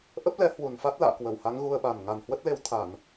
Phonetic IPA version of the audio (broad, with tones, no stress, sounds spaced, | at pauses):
ʔ ə˦˥ p̚ l ɛ˨˦ h w u˨˩ n f a˦˥ t̚ l a̰ː˧˨ k w ə˧˩ w h a˨˦ ŋ ɣ u˧ ə̯ ɓ a˨˩ n ŋ a˨˩ n h w ə˦˥ t̚ l e˧ w t̪ʰ a˧˩˨ n